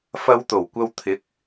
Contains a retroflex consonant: no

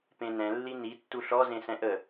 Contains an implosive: no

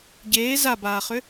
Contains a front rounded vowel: yes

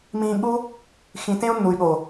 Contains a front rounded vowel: yes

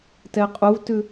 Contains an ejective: yes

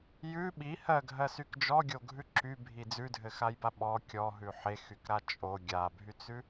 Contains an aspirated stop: no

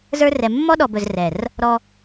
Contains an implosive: yes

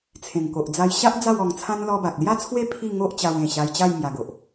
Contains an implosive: no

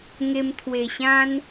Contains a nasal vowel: yes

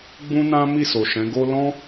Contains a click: no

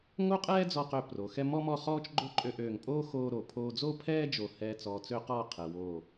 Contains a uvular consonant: yes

